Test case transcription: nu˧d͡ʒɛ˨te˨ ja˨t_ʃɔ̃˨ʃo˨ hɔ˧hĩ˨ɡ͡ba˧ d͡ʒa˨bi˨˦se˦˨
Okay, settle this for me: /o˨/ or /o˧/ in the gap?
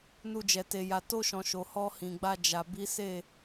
o˧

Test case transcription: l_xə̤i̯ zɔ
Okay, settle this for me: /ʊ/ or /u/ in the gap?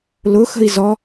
ʊ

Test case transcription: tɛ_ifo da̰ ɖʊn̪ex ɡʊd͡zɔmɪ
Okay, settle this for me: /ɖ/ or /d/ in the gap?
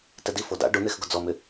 d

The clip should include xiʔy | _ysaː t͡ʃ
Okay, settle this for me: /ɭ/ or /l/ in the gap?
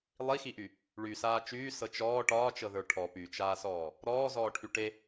ɭ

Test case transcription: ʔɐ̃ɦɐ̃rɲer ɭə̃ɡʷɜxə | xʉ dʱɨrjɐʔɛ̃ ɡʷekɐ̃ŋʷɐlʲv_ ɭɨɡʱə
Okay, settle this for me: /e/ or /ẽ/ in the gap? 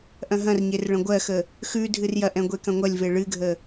e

